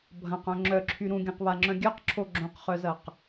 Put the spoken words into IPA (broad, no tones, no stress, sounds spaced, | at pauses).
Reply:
bʱ ɐ̃ q œ̃ ŋ͡ǁ œ ǁʰ y ɾ ũ ɡʲ œ̃ q β a ŋ͡ǁ œ̃ ɡʲ œ q ǁʰ o ɡ͡ǁ õ q χ œ z ɐ q